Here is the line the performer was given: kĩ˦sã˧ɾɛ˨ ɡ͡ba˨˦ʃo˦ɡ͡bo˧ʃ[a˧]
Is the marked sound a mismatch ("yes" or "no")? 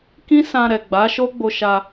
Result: no